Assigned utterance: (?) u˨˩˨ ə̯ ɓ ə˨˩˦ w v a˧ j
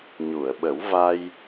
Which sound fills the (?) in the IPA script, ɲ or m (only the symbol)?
ɲ